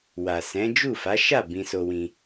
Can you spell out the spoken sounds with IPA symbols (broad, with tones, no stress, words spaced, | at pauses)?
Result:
wa˨sɛ̃˨˦ d͡ʒu˦˨fa˨˦ʃa˦˨ bĩ˧so˧wĩ˧